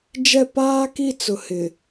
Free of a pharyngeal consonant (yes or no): yes